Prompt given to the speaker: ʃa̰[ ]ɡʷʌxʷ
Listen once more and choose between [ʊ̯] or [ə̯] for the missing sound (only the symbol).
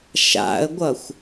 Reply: ə̯